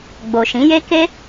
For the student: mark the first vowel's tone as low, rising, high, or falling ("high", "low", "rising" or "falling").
low